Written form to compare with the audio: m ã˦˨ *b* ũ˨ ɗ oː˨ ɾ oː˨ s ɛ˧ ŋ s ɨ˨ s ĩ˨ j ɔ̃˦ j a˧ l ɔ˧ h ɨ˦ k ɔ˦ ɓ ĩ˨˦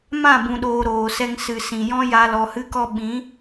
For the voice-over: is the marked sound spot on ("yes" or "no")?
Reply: yes